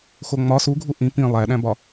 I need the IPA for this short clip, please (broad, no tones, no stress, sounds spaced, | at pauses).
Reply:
x o ŋ͡m ɒ s u ɡʱ u ʔ ĩ p ĩ lˠ æ ɗ æ̃ b ɒ